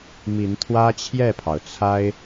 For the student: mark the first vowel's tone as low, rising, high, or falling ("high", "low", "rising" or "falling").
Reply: rising